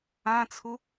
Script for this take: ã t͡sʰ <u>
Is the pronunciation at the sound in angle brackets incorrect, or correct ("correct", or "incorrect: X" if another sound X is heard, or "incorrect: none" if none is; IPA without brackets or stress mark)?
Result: correct